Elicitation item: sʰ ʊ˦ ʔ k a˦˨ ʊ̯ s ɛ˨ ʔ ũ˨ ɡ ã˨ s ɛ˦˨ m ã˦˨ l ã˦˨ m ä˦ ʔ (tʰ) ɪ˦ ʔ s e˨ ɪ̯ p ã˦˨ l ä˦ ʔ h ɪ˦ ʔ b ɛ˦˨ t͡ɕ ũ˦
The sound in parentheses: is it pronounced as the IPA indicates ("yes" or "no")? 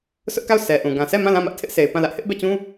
yes